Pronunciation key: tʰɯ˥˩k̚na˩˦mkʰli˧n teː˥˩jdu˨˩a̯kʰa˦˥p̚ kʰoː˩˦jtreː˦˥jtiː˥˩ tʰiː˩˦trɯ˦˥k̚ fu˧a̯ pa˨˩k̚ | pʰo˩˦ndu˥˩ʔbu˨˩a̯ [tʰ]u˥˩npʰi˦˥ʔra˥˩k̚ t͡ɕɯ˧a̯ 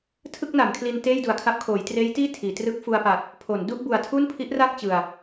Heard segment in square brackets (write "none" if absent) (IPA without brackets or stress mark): tʰ